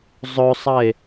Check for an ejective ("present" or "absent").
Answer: absent